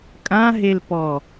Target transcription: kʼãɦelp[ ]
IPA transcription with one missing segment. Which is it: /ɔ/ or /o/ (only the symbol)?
ɔ